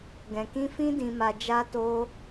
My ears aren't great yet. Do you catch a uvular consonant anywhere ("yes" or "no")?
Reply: no